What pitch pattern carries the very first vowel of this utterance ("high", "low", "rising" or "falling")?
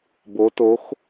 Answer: rising